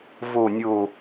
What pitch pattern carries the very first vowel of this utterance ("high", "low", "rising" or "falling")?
low